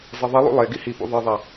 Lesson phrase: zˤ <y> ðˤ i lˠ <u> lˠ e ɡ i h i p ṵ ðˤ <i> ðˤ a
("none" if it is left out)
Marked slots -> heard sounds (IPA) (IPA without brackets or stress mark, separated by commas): i, ṵ, i